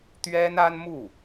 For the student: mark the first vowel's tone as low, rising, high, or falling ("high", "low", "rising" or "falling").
high